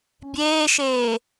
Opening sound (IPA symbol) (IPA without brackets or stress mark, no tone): bʲ